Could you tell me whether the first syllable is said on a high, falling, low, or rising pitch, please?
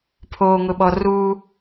low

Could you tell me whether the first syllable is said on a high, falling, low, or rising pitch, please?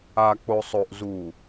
low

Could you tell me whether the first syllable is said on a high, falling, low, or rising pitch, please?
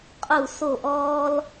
falling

